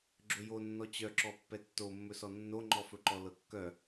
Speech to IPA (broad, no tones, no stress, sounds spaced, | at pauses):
ɡ͡ǁ ɵ j o nː ɔ t͡ɕ œ ǁ ɔ pː ɛ tː o mː ɵ s ɔ nː o ŋ͡ǃ ɔ f ɵ ǃ ɔ l ɤ kː œ